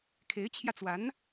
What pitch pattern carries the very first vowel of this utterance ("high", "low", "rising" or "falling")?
rising